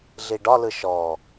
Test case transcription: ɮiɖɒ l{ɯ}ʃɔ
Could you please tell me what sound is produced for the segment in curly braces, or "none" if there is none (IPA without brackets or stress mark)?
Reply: ɯ